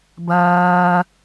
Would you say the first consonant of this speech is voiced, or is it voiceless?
voiced